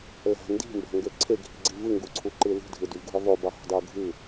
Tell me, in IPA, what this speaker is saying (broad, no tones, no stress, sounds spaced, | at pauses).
l æ̤ n d i̤ m b æ̤ ŋ ɡ ø ǀʰ e ɡʱ i̤ ɡ͡ǀ i v ɯ ŋ ɡ u ǀʰ u ǃ ɯ l i̤ dʱ ɯ d y v ɡʱ ɯ ðˤ o b ɑ ɦ o̤ dˤ e ʊ̯ ɡʱ ɯ